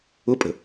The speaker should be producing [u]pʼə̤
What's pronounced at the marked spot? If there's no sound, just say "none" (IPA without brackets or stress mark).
ʊ